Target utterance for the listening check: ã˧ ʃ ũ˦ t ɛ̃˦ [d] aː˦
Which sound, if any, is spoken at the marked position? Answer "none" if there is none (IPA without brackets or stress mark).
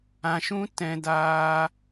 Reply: d